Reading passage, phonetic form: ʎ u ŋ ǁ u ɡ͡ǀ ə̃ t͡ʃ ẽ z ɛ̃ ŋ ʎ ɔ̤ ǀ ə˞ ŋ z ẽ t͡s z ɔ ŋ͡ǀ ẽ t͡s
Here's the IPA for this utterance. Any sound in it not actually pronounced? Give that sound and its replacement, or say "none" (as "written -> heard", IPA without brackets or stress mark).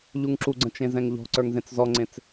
none